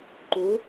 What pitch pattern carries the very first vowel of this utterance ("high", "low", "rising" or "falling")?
rising